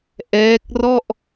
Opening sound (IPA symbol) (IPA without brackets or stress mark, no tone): ʔ